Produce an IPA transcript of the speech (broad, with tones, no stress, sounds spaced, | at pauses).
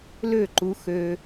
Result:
l ø˦˨ ǃ u˧ x ø˧